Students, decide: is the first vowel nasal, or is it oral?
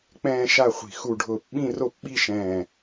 nasal